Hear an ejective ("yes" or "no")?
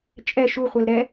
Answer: yes